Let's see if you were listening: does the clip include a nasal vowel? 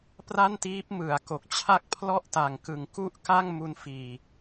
no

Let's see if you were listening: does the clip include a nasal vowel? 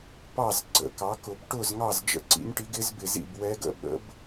no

